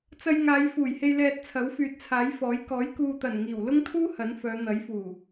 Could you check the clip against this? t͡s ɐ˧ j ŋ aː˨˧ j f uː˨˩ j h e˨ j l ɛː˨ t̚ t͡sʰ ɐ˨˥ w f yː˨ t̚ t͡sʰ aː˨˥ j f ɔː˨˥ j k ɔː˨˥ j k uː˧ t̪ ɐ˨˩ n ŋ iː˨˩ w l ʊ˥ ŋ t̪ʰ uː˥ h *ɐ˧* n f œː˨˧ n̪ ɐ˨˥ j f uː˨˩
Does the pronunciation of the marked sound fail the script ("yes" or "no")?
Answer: yes